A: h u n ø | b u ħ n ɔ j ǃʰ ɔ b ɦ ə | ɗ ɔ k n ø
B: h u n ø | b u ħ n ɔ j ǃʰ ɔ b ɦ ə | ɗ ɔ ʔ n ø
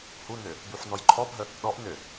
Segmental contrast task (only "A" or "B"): B